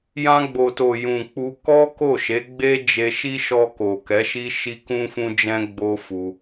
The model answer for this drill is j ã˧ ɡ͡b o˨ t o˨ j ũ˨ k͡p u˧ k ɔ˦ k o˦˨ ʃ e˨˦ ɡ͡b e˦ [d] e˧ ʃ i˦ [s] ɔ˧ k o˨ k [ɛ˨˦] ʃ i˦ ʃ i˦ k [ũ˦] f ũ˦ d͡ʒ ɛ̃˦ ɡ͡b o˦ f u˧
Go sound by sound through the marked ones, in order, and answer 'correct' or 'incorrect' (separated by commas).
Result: incorrect, incorrect, correct, correct